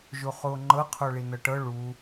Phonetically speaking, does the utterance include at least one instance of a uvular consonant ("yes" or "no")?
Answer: yes